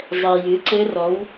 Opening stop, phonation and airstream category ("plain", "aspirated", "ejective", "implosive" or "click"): click